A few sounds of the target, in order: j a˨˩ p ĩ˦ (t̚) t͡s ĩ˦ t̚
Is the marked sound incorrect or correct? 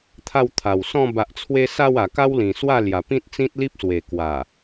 correct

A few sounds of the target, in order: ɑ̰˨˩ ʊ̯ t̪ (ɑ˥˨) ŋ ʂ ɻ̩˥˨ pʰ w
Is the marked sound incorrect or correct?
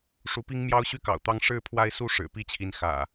incorrect: ɑ˦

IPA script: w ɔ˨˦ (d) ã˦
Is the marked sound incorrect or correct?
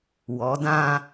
correct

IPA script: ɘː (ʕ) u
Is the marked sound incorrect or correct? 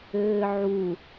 correct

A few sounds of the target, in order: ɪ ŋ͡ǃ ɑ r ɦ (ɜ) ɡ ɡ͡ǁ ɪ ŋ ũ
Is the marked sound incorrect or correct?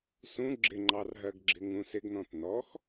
correct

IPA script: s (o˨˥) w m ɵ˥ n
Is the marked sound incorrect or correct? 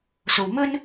incorrect: o˨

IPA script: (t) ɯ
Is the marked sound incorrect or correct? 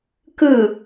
incorrect: k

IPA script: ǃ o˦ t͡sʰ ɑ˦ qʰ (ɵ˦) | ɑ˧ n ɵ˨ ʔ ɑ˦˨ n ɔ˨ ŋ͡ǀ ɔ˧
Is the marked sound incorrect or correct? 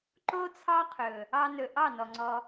incorrect: ɵ˨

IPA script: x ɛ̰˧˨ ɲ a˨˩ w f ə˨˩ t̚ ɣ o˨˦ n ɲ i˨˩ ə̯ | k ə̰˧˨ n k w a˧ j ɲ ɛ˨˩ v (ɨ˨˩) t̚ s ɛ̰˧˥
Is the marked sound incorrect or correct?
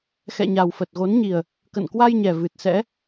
correct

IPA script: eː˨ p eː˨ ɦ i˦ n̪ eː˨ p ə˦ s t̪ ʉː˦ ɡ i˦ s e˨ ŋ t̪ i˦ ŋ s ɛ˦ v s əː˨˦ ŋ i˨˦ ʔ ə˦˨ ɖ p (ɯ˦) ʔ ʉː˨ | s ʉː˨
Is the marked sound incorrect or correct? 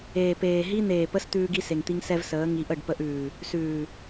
incorrect: ə˦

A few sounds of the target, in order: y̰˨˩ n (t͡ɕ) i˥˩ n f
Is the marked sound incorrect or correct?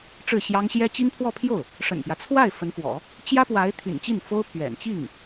correct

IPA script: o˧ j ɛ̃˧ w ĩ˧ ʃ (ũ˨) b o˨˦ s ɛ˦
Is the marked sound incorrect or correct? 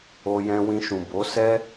correct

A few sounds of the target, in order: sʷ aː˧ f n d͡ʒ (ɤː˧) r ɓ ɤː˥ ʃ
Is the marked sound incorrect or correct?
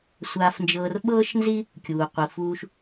correct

